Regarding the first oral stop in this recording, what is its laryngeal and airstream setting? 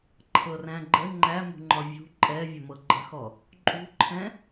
click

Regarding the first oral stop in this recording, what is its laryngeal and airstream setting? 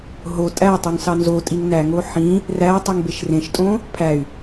ejective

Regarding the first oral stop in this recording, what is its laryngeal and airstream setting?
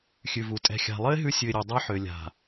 ejective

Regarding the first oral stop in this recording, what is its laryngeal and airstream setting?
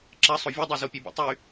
click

